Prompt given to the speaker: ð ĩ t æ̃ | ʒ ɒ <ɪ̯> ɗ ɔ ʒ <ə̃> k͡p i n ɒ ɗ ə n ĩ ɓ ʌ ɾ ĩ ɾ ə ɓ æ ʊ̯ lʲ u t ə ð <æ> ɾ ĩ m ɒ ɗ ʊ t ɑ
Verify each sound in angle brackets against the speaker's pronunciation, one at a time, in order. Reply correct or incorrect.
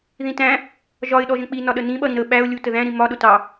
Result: correct, correct, incorrect

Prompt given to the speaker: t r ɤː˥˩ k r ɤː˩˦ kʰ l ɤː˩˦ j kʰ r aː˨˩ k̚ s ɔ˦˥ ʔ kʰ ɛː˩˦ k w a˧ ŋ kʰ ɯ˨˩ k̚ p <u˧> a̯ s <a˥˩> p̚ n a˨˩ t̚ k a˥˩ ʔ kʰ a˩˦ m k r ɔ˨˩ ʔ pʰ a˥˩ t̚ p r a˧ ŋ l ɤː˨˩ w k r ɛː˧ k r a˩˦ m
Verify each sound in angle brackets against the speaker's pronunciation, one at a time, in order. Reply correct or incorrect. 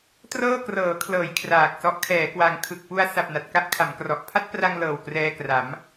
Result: correct, incorrect

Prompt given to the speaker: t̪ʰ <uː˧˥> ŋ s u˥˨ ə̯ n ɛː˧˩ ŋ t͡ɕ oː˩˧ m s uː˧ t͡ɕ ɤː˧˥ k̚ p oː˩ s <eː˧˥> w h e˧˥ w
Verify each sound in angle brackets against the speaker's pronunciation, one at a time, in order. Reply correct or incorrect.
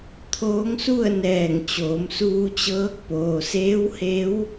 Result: incorrect, correct

